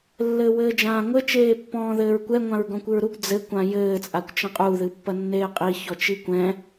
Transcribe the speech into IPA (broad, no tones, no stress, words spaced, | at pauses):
lːɘːwɘːd͡ʒãːŋʷɘ t͡ʃeːpːɔ̃ːðɘːɹkʷɛ ŋʷãɹɡɔ̃kʷɨɹɾuɡ d͡zɘ kʷãjɘː t͡sʼakʷt͡ʃɐ̃qʼu ðɨpːɐnːeːqʼi çɔt͡ʃikʷɛ̃